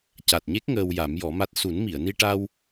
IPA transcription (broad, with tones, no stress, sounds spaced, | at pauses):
c a˨˩ t̚ ɲ e˦˥ k̚ ŋ əː˧ w j a˨˩˦ m j ɔ˨˩˦ m a˦˥ t̚ s u˨˩˦ n m i˨˩˨ ə̯ n i˧ ʈ a˧ w